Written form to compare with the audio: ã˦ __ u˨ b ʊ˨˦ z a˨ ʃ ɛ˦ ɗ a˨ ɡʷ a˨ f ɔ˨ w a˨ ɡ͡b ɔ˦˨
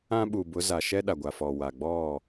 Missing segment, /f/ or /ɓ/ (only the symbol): ɓ